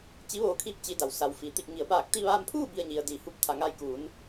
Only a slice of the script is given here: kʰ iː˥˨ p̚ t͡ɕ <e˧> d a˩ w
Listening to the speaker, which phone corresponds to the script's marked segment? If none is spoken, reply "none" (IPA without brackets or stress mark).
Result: i˧